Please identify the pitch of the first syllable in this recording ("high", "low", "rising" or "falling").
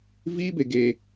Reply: high